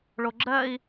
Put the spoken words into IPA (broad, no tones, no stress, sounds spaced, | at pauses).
ɭ o ɡ͡ǁ ɜ i̯